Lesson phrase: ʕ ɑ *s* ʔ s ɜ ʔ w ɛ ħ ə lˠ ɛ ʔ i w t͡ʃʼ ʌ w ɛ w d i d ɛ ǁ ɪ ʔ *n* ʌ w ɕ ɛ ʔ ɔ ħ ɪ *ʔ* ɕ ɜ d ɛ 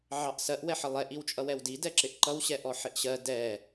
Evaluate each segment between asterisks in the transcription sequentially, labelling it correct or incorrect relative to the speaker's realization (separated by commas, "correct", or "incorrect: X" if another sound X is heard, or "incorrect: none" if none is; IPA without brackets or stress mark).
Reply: incorrect: none, incorrect: ǃ, correct